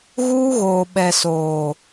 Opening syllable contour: high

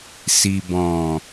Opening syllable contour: low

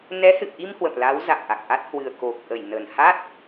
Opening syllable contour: rising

